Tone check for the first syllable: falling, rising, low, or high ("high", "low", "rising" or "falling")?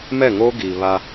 falling